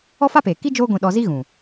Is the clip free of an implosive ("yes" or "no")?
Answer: no